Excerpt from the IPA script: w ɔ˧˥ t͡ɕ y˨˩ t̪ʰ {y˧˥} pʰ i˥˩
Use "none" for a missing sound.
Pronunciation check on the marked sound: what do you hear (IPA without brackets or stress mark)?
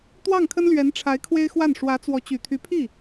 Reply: y˧˥